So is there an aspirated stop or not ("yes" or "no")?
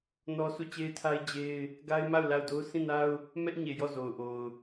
yes